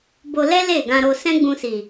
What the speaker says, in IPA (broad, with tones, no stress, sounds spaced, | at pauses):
b o˧ l ɛ˦ l e˦˨ ɡ ã˧ ɾ o˧ s ɛ̃˦ ɡ͡b ũ˧ s i˨